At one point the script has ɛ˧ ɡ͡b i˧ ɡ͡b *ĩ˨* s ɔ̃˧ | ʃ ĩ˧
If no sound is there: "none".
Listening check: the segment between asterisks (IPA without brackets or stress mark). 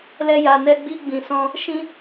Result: ĩ˨